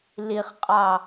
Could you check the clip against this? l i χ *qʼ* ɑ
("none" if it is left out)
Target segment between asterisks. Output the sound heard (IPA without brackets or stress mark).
qʼ